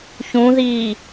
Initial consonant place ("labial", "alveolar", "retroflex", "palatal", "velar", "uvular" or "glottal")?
palatal